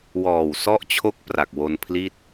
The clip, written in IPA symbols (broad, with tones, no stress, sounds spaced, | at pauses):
w ɔː˨˩ w s ɔ˦˥ ʔ t͡ɕʰ o˦˥ k̚ p r a˨˩ k̚ w o˧ n pʰ l i˥˩ t̚